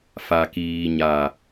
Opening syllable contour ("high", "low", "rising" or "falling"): low